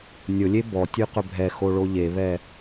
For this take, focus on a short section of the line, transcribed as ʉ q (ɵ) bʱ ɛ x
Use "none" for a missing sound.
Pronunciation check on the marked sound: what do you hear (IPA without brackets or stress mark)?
ɵ